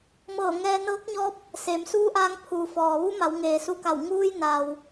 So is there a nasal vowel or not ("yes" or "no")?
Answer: no